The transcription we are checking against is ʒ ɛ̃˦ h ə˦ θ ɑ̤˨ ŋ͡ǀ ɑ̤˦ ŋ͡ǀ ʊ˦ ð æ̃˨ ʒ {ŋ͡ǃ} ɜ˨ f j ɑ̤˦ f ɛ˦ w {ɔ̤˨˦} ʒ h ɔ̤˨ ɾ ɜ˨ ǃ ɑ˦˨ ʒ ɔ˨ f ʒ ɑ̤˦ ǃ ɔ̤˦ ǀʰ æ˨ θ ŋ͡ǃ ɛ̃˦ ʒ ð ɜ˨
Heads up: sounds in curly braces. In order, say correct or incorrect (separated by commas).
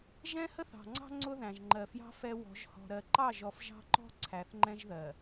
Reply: correct, correct